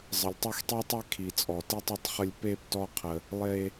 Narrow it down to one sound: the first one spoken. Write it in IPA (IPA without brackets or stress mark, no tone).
zˤ